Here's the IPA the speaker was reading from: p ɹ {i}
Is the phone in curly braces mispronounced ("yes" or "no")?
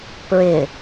yes